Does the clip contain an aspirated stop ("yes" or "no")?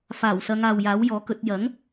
no